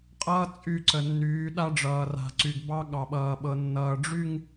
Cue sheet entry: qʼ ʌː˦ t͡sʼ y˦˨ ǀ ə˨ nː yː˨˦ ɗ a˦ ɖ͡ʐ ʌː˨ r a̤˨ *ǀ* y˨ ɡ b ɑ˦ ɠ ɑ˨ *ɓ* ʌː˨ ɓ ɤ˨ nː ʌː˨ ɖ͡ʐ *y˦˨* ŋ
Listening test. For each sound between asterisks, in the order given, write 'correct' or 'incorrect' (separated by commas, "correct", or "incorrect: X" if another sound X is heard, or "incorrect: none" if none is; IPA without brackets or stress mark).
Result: correct, correct, correct